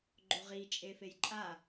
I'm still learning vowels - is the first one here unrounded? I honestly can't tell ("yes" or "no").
no